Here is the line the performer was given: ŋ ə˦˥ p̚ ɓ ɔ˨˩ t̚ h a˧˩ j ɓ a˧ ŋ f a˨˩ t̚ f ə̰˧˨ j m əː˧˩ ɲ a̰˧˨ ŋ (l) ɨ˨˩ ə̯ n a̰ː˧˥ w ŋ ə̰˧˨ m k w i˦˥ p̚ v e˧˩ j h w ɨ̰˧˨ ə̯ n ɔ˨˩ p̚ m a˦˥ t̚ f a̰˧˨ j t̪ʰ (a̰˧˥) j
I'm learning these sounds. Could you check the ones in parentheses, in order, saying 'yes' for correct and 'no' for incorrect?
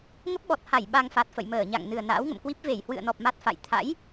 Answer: no, yes

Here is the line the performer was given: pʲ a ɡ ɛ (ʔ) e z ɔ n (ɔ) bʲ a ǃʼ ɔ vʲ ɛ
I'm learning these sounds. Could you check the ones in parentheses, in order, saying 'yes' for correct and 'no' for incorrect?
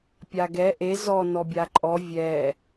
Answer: yes, yes

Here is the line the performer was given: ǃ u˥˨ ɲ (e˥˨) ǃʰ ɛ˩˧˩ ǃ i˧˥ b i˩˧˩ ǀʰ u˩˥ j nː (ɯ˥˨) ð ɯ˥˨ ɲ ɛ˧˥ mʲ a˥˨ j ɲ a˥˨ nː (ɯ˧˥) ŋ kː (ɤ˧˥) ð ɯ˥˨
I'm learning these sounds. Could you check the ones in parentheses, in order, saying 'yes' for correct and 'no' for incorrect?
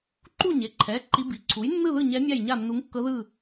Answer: no, yes, no, yes

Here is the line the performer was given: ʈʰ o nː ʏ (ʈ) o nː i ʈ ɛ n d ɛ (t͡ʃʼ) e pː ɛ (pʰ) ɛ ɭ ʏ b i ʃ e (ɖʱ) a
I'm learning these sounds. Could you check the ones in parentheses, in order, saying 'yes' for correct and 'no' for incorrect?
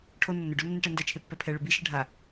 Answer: no, no, yes, yes

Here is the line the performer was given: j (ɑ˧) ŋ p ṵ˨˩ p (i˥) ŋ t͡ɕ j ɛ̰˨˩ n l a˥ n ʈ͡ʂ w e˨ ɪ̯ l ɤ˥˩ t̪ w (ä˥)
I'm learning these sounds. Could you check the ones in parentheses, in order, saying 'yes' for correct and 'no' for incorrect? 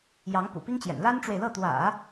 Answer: no, yes, no

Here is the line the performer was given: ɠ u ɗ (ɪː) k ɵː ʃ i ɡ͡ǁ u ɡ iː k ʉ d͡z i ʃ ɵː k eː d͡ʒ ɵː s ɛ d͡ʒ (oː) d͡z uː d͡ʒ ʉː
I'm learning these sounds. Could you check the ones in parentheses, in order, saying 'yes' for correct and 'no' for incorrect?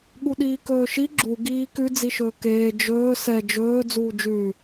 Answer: no, no

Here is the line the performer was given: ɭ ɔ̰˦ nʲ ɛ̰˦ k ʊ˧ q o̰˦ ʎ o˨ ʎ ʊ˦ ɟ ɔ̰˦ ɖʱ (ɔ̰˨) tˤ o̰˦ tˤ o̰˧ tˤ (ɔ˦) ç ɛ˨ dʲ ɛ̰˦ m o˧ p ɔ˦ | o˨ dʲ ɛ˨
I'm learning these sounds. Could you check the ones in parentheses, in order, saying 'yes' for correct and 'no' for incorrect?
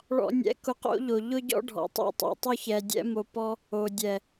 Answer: no, no

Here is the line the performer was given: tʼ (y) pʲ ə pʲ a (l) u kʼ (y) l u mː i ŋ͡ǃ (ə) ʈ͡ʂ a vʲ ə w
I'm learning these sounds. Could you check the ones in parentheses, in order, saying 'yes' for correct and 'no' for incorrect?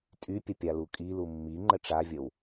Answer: yes, yes, no, yes

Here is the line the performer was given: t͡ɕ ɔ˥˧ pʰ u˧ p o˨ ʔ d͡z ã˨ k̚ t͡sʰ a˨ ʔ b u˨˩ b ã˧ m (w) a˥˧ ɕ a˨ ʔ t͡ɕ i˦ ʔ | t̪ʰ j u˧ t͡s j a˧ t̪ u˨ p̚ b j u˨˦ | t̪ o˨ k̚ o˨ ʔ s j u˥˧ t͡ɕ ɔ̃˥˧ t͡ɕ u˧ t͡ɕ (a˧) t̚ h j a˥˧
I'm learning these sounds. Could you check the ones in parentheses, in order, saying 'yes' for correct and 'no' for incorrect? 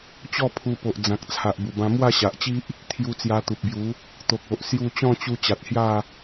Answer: yes, no

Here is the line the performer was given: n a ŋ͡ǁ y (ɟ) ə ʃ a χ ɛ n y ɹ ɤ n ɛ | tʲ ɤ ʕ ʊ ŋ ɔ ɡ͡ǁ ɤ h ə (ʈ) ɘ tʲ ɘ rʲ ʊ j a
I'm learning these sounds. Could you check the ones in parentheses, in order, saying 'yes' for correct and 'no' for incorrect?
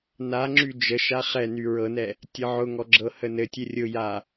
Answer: no, no

